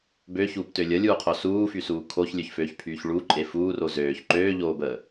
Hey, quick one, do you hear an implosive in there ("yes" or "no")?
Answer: no